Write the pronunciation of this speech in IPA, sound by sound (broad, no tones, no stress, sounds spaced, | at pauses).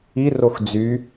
i r o x d͡z y